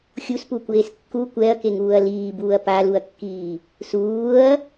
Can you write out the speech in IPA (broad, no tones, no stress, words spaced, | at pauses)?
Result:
xʲuspukʷeːs kːu kʷɛɐ̯keŋuːɐ̯ liːbuːɐ̯ paluɐ̯kːiː | suːɐ̯